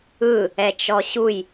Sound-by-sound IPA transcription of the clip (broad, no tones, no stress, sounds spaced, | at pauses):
ɯ | ɛ t͡ʃ ɔ ɕ u j